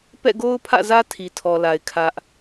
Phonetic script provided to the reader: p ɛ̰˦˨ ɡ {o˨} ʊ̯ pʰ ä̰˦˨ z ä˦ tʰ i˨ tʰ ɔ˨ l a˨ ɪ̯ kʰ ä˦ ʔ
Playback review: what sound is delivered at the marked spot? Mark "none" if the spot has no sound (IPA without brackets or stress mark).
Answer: o˦